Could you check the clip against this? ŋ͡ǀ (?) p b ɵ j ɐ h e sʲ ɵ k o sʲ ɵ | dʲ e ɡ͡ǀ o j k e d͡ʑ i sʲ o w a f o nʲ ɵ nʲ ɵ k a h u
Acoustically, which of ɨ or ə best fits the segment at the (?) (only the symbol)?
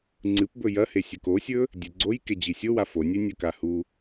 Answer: ɨ